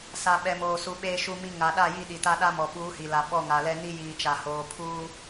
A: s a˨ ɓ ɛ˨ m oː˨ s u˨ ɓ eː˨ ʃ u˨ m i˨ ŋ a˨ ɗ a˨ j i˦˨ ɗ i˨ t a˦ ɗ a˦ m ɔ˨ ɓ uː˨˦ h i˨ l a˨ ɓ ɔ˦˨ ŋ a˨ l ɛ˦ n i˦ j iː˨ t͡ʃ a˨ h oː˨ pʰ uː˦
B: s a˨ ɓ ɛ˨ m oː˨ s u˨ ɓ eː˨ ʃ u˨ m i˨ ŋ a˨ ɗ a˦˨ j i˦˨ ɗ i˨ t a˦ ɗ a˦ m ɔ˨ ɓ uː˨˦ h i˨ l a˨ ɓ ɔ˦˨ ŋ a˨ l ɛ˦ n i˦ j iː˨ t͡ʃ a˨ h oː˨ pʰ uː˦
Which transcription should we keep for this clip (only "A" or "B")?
B